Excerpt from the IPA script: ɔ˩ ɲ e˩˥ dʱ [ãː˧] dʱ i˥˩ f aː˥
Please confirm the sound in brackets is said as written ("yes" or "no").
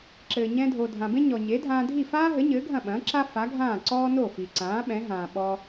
yes